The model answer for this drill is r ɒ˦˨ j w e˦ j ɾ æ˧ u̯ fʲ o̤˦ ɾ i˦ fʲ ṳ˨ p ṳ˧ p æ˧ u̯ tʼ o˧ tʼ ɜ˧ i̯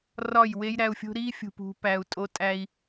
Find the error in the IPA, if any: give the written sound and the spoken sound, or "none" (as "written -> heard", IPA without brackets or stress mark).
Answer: ɜ˧ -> æ˧